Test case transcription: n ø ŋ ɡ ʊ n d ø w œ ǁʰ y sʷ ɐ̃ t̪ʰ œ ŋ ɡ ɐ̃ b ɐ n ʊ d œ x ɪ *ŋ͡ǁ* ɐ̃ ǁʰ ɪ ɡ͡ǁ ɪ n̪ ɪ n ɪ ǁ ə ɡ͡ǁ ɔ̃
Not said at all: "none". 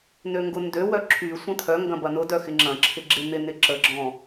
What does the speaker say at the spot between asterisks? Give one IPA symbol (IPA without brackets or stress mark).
ŋ͡ǁ